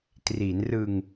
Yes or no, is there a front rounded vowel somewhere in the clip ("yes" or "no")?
no